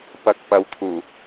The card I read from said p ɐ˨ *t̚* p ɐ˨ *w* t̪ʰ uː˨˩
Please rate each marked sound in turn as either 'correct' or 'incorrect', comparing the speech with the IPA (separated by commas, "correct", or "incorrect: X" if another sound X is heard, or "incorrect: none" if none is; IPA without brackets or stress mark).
incorrect: k̚, correct